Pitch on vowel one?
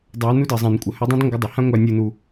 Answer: rising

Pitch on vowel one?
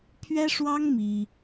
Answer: high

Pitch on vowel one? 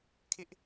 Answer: high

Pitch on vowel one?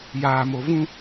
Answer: low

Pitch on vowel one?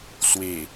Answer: low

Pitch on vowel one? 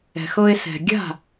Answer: low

